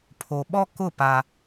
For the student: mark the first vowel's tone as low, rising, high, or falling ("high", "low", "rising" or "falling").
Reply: low